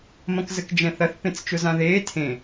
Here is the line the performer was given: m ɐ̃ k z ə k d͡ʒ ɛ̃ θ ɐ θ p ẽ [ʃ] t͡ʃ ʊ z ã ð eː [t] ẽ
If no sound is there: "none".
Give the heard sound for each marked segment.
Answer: t͡s, tʰ

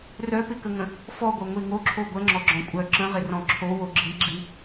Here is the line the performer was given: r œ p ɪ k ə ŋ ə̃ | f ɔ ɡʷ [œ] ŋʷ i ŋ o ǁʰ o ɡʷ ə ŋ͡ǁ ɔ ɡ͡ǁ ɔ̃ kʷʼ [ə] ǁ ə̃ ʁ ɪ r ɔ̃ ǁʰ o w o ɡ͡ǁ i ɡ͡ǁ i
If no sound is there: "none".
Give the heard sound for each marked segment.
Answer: œ, œ

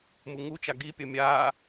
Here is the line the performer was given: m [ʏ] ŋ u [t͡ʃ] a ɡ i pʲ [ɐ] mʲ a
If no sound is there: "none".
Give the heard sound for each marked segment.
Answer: u, t͡ʃ, ɐ

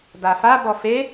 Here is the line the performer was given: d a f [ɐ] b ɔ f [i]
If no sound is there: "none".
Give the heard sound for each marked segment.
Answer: a, e

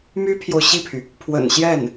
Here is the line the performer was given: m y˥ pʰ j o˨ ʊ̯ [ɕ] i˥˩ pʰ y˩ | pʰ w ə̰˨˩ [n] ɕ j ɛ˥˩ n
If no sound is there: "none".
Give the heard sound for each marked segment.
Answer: ɕ, n

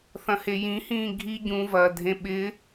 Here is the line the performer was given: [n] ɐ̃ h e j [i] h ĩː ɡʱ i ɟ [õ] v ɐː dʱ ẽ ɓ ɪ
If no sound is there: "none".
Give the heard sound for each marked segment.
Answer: θ, ĩ, ũ

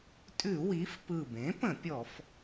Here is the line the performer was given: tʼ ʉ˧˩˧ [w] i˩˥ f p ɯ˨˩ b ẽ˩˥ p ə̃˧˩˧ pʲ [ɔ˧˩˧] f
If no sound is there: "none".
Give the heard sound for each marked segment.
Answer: w, ɔ˧˩˧

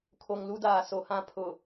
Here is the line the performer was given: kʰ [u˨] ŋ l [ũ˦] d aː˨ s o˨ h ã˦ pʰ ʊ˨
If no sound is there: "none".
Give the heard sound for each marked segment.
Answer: o˨, u˦

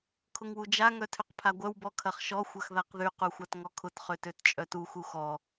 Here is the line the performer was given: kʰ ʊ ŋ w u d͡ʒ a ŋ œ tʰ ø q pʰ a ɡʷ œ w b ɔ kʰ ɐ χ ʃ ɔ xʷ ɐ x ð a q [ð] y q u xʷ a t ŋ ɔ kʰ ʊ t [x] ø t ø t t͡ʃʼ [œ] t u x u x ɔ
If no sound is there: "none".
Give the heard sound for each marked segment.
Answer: ð, χ, œ

